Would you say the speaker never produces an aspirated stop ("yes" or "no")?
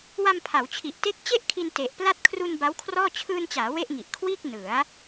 no